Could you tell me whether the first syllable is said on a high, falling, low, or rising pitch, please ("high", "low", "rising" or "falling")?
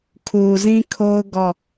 low